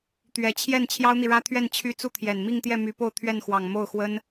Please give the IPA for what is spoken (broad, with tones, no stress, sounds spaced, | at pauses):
t̪ ɥ ɛ˨˩ t͡ɕʰ j ɛ˥˩ n t͡ɕʰ j ɑ˥ ʊ̯ n̪ i˨ ɻ ä˥ t̪ʰ ɥ ɛ˥˩ n t͡ɕʰ y˥ t͡s u˥˩ t̪ʰ j ɛ˨˩ n m i˥˧ ŋ t̪ j ɛ˥˩ m y˧˥ p o˥˧ ʊ̯ t̪ʰ ɥ ɛ˥˩ n x w ɑ˨˩ ŋ m o˥˩ ʊ̯ x w ə˥ n